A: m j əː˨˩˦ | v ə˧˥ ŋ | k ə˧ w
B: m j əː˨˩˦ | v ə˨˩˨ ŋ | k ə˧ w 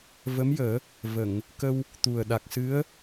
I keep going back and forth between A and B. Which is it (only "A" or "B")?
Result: B